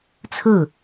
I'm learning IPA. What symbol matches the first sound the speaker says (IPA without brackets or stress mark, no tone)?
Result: t͡sʰ